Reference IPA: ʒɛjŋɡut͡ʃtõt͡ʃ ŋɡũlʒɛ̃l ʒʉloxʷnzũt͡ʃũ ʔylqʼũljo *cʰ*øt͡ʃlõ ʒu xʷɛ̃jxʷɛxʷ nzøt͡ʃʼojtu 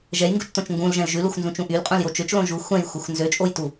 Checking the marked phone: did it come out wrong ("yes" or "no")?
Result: yes